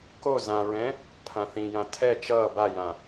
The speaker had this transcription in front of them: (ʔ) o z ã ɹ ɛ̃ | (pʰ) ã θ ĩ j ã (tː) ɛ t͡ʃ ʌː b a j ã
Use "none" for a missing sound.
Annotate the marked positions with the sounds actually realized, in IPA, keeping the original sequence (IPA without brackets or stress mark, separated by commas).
k, pʰ, tʰ